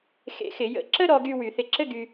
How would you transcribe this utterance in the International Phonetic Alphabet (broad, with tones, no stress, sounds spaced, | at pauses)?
x ḛ˧˩˧ x ɪ˧˩˧ j ə̰˧˩˧ ǁ ə˥ ɾ ɔ˧ ɡ y˧ w y˧˩˧ θ ɪ˧ ǁ ɘ˥ ɡ y˧